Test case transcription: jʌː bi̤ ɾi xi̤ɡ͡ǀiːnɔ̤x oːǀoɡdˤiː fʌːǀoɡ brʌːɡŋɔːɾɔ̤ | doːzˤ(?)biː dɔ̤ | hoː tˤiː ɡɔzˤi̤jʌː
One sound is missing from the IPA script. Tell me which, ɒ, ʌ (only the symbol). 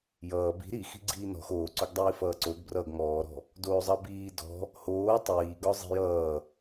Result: ʌ